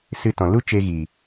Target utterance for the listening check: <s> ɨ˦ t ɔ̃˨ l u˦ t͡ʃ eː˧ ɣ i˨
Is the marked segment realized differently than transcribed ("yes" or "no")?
no